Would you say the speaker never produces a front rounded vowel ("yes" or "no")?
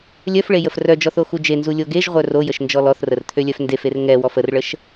no